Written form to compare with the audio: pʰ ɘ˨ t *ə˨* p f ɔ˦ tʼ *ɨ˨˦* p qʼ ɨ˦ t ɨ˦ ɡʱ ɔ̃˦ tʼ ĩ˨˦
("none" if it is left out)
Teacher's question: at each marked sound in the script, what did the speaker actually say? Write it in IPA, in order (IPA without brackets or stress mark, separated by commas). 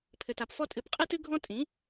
a˨, ɨ˨˦